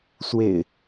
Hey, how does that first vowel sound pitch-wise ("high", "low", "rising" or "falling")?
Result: low